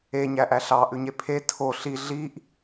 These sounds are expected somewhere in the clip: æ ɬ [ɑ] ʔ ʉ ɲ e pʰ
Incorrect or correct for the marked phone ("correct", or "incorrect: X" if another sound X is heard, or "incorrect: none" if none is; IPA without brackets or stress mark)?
correct